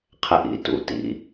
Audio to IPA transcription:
qʰ ɛ ʔ ḭ t ṵ t ḭ

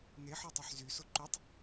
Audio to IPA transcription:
n e ħ ɔ tˤ ø ħ z y s o ǃ y tˤ

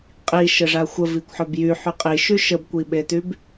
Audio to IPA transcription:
qʼ i ʃ ə ʐ a xʷ ə v i kʷ ħ œ b j y ħ y qʼ i ʃ y ʃ ə b kʷ i ɓ e t y b

